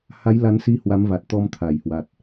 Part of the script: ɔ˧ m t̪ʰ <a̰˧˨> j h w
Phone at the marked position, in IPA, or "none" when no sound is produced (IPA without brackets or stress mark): a˧˩